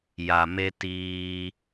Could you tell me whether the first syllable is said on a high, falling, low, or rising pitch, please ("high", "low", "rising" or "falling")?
low